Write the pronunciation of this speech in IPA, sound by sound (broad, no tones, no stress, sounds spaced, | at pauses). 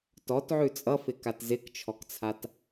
t ɔ t ʕ ʉ t͡sʼ ʌ f ɪ k a t z ɪ k t͡ʃʰ ɔ k t͡sʰ a t